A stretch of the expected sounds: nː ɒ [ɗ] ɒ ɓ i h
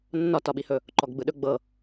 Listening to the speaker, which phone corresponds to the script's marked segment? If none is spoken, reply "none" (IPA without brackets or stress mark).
t